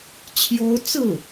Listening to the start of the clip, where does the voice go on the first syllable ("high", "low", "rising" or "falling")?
high